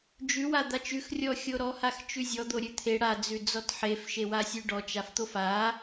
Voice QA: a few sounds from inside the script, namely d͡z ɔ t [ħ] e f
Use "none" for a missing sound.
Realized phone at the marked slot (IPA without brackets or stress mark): ħ